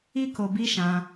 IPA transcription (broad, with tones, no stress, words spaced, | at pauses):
i˦ko˧ bi˦ʃã˧